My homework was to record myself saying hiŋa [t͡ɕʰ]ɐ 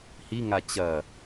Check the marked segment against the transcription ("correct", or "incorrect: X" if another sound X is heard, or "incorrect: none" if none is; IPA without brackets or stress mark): incorrect: t͡ɕ